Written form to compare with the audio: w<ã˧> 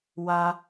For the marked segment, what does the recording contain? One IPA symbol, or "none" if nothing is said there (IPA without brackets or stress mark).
a˧